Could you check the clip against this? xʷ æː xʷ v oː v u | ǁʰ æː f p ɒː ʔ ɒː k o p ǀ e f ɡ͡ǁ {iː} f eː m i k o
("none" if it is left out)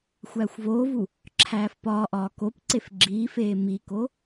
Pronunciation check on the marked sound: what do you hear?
iː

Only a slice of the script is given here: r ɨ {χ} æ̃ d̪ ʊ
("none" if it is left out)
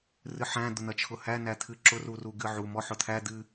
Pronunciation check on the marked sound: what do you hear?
ħ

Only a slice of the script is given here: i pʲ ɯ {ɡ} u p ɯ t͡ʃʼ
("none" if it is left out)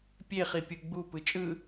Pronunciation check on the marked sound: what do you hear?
ɡ͡b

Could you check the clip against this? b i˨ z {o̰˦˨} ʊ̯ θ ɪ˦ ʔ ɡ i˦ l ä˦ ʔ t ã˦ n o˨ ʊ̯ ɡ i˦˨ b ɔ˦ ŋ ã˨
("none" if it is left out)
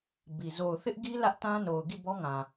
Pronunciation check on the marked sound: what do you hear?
o˨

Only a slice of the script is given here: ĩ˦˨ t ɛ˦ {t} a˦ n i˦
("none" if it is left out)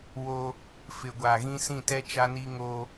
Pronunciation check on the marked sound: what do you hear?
t͡ʃ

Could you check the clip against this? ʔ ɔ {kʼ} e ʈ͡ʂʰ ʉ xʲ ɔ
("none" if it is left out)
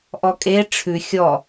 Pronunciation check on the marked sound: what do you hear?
kʼ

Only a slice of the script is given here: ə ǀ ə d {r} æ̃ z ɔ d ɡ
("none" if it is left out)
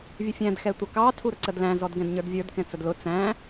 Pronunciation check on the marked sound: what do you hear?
l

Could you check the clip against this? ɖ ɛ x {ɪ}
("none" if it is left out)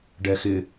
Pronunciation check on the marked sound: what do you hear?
ɪ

